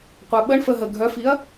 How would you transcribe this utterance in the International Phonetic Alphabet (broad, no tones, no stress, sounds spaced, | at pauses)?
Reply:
qʷ a ɓ ə ɳ f ə ɦ ə ɡʱ œ f i ɐ̯